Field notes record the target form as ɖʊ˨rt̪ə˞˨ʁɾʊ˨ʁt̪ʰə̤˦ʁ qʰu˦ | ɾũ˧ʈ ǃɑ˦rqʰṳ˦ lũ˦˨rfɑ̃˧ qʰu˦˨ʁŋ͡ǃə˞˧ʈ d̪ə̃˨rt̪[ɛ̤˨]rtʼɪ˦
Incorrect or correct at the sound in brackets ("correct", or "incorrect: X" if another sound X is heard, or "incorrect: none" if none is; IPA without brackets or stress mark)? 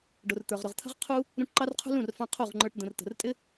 incorrect: ə̤˨